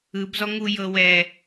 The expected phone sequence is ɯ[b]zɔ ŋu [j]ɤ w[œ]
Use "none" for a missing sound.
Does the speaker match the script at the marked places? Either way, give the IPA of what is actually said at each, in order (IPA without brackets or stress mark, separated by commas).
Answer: b, j, ɛ